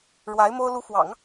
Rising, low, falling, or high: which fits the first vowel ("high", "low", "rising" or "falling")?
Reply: rising